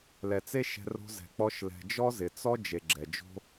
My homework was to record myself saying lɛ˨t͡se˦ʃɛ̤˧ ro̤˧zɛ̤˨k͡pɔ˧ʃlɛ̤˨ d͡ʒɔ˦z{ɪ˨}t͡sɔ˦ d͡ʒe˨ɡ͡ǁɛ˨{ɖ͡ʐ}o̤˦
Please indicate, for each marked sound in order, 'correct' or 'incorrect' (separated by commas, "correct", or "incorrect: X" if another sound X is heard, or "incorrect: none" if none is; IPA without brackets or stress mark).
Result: correct, incorrect: d͡ʒ